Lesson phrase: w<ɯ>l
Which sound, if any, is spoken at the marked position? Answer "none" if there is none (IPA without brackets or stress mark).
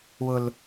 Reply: ʊ